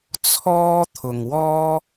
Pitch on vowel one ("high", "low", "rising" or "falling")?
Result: high